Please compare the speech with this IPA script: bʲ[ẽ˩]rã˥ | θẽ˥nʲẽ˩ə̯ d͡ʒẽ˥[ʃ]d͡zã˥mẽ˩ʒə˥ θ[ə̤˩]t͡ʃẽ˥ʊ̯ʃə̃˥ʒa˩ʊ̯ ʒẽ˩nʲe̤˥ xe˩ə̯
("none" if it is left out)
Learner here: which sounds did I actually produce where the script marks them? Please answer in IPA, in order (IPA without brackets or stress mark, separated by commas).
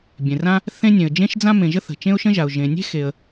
ẽ˩, ʃ, ə̤˩